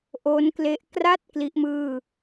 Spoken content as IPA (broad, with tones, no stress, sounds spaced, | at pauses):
ʔ o˦˥ n k l e˦˥ ʔ k r a˦˥ t̚ k l i˦˥ ʔ m ɯː˥˩